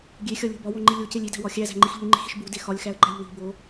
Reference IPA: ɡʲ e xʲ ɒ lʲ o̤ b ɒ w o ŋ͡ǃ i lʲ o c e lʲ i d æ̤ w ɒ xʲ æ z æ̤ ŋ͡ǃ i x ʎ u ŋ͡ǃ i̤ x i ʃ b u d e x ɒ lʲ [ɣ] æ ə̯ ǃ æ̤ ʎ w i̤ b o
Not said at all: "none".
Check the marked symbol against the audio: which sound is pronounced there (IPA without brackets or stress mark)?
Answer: x